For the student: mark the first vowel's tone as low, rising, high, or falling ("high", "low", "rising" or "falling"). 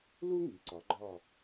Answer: high